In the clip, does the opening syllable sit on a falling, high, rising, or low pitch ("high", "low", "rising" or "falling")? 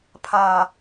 low